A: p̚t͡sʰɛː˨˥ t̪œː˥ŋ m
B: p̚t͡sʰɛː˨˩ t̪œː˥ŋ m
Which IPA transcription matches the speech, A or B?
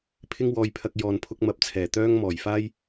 B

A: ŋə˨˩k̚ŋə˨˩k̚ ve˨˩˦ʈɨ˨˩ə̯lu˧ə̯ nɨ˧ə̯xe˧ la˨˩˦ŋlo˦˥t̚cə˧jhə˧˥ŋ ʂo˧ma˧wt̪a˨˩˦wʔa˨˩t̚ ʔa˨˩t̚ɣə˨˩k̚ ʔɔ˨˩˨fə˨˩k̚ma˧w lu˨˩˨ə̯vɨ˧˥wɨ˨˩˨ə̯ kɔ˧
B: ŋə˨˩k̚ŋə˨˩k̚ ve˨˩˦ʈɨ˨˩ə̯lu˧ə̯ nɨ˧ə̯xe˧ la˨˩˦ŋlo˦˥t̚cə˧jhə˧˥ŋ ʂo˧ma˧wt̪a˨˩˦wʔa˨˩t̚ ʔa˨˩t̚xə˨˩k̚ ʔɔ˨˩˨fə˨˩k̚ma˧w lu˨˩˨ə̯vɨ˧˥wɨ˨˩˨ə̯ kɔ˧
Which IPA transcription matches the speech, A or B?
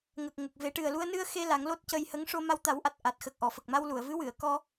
B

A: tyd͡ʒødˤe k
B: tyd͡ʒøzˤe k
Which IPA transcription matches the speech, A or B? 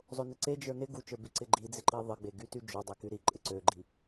A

